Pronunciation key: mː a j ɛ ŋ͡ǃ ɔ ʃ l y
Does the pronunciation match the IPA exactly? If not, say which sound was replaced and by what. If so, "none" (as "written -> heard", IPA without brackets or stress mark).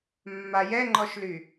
none